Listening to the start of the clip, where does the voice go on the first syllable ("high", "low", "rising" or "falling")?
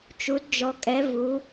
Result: rising